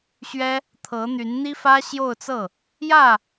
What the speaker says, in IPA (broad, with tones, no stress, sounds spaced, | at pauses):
ɕ ɥ ɛ˥ | t̪ʰ ɤ˧˥ n̪ y˧˥ n n̪ i˥ f ä˥ ɕ j o˥˧ ʊ̯ t͡s ɤ˥˩ | j ä˥˩